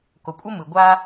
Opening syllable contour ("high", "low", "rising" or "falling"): low